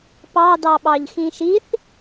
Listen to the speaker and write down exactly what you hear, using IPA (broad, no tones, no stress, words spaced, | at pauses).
pɑdɑɓɑʎxĩ ʃiθ